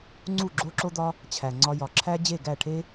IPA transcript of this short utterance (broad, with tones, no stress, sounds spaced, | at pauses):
ŋ͡ǀ u˦˨ ɡ͡ǁ o˦ ǁ o˦ d̪ ɒ˦ | t͡ɕʰ æ˨ ŋ͡ǀ ɒ˧ j ɒ˨ ǁʰ æ˦ d͡ʑ e˦˨ ɡ æ˦˨ ʈʰ e˦